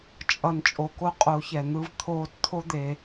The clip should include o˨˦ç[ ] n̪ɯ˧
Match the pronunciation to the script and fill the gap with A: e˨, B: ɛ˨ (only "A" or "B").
B